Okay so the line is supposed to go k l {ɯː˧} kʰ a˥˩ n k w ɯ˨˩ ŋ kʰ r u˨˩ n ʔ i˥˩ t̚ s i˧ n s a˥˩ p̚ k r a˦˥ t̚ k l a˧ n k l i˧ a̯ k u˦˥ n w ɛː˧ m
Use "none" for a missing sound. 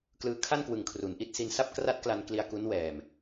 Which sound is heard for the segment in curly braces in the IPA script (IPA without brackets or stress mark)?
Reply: ɯː˧